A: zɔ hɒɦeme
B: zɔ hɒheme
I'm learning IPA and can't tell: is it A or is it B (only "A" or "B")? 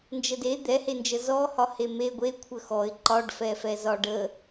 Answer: B